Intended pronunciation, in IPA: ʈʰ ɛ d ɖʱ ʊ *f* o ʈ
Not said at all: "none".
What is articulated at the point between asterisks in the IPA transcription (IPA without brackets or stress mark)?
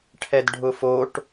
f